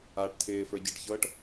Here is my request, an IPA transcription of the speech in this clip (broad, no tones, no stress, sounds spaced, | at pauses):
aː ʈ tʰ ɪː f ə˞ ɟ ɤ ʈ ç ɤː ʈ